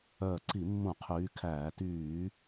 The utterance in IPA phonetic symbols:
œː˧˩ǀi˧˩˧mːũ˧˩˧ qʰyː˨˦kʰæː˧˩˧ tyː˧˩˧

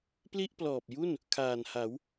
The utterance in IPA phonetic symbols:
pli˥˩ʔplɔː˨˩p̚ju˥˩n | kʰaː˨˩nha˩˦w

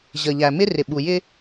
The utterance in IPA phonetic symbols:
ʑə˨ ʎæ˨mɪ˦rɪ˨ ɓu˨jɪ˦

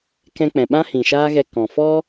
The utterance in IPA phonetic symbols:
kɛ̃˧k͡pɛ̃˨ɓã˦ hĩ˨ʃaː˦ɣɛ˧ kɔ̃˨fɔ˦

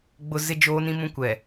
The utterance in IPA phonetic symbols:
ɡ͡bʊ˨ zɪ˦d͡ʒoː˦nĩ˦mũ˦ kʷɛ˨

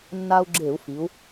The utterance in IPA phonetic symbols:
nːa˧u̯ ɡ͡ǁe˧˩˧u̯fi˩˧u̯

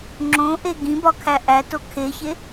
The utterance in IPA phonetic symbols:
ŋ͡ǁõʔe ɡĩbɒkʰæ ʔæto kʰeçe

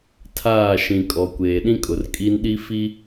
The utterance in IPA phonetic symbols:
tʰaː˦˨ʃĩ˨kʼɔ˨ kʷeː˨ɗĩ˦kʼʊ˨r kʼi˦nɗi˦ fi˦

